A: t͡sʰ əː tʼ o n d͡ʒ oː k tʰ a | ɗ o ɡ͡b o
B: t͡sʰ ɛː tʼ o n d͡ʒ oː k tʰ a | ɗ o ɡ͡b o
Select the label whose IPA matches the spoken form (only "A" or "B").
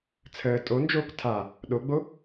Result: A